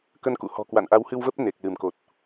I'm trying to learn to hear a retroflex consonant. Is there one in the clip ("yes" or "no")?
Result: no